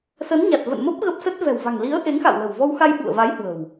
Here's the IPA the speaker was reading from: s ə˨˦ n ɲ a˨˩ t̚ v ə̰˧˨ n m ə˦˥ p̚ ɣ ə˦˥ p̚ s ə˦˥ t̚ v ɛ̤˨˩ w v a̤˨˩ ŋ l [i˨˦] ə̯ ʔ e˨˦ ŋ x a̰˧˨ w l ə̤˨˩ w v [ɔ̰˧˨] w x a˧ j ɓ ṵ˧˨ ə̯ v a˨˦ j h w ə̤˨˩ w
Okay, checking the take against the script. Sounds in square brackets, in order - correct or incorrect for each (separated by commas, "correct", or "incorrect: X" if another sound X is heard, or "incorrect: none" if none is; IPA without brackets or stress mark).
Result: correct, incorrect: ɔ˧